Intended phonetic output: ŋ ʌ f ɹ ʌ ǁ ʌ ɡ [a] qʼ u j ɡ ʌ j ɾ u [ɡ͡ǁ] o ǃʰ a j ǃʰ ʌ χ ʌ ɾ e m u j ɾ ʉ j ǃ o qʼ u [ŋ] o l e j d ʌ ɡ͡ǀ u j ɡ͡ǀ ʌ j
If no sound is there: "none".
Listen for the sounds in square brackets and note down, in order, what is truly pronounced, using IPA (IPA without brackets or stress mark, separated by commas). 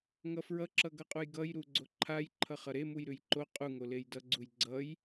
ʌ, ɡ͡ǀ, ŋ